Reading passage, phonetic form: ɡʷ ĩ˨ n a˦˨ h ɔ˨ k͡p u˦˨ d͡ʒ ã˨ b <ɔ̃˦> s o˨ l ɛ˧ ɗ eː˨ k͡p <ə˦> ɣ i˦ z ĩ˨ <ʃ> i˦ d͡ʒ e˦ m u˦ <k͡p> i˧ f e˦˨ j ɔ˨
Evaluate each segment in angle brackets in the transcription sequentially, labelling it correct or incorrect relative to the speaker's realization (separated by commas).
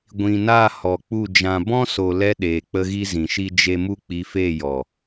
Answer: correct, correct, correct, correct